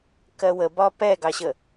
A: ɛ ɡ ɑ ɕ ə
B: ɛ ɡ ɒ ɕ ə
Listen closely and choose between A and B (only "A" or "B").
A